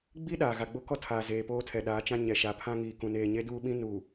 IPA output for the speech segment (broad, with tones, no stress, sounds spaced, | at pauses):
ɡ͡b i˦ ɗ aː˨ ɣ a˨ ɡ͡b o˦ k ɔ˦ tʰ aː˨ z eː˨ p oː˦ tʰ ɛ˨ ɗ aː˨˦ t͡ʃ ã˦ ɲ ɛ˨ ʃ a˨ pʰ ã˦ ŋ iː˨ k ũ˨ n eː˨ ɲ e˦ d uː˦ ɓ ĩ˦ n u˨